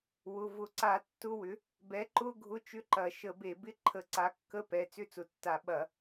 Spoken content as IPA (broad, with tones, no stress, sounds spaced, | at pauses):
w ʊ˩˧˩ v ʊ˧˩˧ ǀ a˧˩˧ tː ʊ˧˥˧ w ʏ˩˥ | b ɛ˩˥ ǃ ʊ˧˥˧ ɡʱ ʊ˧˥˧ t͡ʃ ʏ˧˥˧ ǃ ɐ˧˩˧ ʃ ə˧˩˧ b e˧˩˧ b ɪ˧˥˧ ǃʰ ə˧˩˧ ǀ a˩˥ kː ə˧˥˧ p ɛ˩˧˩ t͡s ʏ˧˥˧ t͡s ʊ˩˥ tː a˧˩˧ ɓ ɐ˧˩˧